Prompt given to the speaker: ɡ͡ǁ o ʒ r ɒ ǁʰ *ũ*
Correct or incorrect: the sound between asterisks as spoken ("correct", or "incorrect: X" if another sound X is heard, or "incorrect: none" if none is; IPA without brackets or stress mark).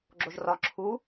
incorrect: u